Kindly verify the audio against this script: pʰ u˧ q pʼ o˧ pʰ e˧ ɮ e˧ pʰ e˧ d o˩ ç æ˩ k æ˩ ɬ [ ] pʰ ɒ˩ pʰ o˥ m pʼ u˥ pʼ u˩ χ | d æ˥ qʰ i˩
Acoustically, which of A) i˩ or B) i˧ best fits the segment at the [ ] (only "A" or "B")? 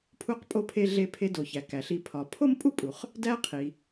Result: B